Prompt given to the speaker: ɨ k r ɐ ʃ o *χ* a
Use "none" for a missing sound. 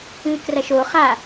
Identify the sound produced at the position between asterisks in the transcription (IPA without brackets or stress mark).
χ